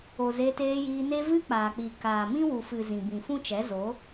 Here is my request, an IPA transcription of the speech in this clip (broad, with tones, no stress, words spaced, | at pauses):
o˨ze˧ teː˧jiː˧ne˦ vɨ˦k͡paː˨k͡pi˨ kaː˨mĩ˦ wu˨fɨ˨ zĩ˨bĩ˨ fũ˦t͡ʃɛ˨˦zo˨˦